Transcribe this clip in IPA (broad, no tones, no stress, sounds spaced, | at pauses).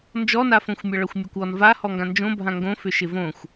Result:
n d͡ʒ ɔ n a f õ xʷ mʲ ʌ ɭ ʌ xʷ mʲ a kʷ ɔ n v a h ɔ ŋ ɡ ã n d͡ʒ õ bʱ ã ŋ ɡ õ f ʏ ʃ ɪ v õ xʷ